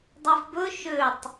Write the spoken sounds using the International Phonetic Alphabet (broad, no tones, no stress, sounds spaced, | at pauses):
dˤ e v b ɵ ʃ ø tˤ